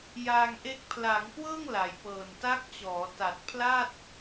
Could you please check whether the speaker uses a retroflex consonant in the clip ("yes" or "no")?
no